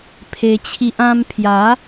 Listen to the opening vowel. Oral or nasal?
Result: oral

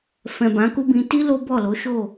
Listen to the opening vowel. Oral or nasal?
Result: nasal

